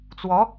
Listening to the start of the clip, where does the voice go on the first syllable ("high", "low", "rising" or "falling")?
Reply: rising